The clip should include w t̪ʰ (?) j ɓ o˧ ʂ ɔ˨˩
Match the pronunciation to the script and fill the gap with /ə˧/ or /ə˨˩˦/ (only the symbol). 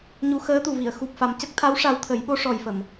ə˨˩˦